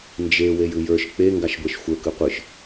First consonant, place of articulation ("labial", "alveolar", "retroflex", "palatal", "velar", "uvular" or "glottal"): alveolar